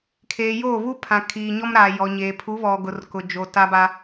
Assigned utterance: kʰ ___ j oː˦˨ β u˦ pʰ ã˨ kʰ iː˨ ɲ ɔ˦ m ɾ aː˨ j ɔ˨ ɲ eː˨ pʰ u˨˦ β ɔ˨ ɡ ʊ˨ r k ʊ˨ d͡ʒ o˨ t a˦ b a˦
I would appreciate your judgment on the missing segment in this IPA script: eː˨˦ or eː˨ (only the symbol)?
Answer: eː˨